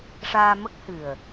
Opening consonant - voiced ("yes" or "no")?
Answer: no